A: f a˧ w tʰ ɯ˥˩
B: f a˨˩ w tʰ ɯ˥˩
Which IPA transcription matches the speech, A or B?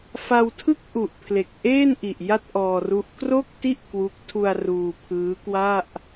A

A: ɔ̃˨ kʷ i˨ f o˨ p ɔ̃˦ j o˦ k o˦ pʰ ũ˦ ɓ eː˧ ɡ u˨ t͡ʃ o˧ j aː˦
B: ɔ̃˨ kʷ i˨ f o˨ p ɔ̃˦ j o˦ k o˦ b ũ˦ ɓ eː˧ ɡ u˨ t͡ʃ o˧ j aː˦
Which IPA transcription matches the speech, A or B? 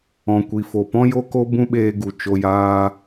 B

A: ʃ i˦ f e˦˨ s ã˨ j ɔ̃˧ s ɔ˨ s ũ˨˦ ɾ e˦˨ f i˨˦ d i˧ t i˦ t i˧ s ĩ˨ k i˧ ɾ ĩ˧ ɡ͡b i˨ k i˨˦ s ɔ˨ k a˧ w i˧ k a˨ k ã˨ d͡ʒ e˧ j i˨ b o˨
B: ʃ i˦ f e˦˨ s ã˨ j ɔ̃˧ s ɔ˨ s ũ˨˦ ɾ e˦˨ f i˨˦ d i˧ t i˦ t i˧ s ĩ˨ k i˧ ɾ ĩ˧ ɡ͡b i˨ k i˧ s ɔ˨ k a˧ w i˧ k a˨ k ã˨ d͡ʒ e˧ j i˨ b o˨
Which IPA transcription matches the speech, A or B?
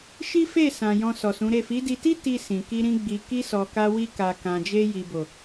B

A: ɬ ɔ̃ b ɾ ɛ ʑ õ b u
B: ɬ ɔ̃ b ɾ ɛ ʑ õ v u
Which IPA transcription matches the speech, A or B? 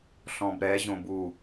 A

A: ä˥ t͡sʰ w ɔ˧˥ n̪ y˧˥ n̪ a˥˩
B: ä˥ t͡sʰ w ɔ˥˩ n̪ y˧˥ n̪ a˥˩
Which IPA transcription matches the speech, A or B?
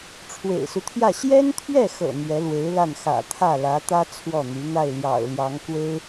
B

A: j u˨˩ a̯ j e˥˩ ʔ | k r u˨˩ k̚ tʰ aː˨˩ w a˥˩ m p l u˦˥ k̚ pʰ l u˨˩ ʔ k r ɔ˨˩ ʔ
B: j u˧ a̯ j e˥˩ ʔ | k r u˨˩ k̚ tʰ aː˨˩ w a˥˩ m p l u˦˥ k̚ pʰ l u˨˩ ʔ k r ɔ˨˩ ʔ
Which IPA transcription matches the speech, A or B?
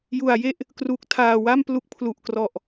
A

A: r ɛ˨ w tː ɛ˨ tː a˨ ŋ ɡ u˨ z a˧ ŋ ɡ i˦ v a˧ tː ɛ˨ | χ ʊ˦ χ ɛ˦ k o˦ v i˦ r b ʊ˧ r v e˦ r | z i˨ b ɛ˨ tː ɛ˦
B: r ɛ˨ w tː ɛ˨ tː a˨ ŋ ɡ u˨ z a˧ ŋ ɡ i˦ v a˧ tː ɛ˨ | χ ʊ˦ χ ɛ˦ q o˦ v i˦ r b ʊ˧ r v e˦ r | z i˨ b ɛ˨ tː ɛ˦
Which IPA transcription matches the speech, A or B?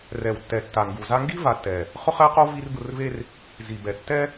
B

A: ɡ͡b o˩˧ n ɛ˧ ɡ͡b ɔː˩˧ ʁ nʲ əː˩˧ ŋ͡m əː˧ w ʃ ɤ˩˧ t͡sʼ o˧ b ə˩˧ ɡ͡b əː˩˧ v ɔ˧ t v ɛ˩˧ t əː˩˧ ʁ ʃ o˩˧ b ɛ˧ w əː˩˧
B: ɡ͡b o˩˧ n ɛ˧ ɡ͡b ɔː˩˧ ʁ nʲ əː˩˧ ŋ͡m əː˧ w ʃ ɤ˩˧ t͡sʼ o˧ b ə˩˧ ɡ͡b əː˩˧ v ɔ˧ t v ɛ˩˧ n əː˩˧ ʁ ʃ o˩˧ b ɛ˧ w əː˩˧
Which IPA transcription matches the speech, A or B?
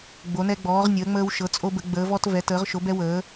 A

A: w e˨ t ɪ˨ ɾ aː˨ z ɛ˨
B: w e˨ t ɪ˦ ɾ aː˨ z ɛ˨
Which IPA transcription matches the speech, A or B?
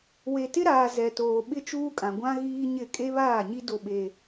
B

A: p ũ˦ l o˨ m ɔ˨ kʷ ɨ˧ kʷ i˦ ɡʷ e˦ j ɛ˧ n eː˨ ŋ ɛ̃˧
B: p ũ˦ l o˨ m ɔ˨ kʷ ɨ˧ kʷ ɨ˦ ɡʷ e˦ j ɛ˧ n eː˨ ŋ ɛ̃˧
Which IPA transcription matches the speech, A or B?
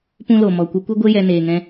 B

